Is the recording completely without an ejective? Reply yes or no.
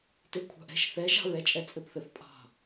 no